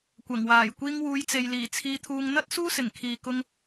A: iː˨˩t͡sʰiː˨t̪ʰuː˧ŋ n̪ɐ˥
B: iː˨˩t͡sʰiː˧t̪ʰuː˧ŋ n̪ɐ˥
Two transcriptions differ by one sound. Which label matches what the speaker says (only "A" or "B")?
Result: B